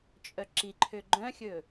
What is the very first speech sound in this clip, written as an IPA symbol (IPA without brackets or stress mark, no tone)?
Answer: t͡ʃʼ